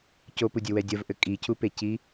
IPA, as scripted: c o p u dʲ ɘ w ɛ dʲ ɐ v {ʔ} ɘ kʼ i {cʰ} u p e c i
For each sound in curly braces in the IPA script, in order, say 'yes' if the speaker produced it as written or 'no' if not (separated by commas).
yes, yes